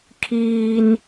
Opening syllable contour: high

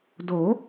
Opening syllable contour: rising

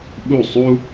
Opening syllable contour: falling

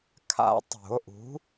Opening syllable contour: high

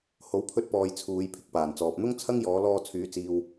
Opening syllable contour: rising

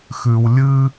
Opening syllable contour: low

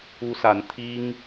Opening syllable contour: high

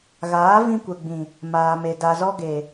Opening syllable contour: rising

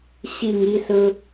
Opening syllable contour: low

